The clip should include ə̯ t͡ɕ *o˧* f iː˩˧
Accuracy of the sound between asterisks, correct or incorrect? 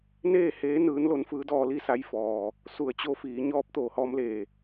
correct